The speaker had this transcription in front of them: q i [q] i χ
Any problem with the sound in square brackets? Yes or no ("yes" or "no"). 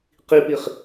yes